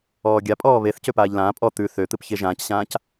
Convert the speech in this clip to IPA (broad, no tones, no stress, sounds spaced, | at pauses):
ɔː ɡʲ a pʼ ɔː β e θ c ø p aː ʎ l ãː pʼ ɔ t̪ ʉ θ ø t̪ ɨ p ç e ʒ ãː c ɕ ãː c